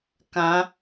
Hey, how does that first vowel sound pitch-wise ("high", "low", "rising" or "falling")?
rising